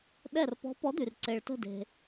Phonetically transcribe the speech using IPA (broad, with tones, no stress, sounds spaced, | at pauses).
ɗ ɛ˧˩ r p ɔ̤˨˥ p ɔ˨˥ d̪ y˩ r ǀ e˩ ɭ t ə̤˧˩ d e̤˩